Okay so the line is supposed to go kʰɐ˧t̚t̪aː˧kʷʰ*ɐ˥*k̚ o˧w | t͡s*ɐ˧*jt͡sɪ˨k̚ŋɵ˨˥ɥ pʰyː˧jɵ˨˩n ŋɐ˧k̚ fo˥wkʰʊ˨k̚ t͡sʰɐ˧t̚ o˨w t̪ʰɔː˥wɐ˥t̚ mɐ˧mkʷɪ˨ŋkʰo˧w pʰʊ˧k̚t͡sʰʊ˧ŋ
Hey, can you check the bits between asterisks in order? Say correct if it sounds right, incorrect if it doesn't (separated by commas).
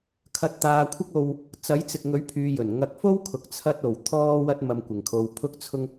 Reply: correct, incorrect